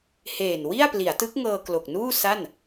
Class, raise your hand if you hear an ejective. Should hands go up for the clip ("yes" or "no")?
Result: no